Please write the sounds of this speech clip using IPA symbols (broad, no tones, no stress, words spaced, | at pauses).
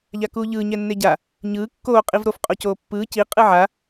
ʎakuːʎɯː ɲɛnːeɟa | ɲɯː kːoː qʼivɾof qʼocoːpːɯː ci qʼɯʕa